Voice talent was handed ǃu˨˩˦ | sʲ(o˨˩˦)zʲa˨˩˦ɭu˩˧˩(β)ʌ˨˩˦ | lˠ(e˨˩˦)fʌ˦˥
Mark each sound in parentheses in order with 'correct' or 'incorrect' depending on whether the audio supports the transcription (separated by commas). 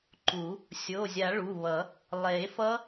incorrect, correct, correct